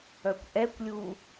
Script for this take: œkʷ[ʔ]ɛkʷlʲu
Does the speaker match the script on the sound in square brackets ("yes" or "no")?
yes